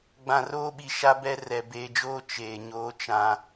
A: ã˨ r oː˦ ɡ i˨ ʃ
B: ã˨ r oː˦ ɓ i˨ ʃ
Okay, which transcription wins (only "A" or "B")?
B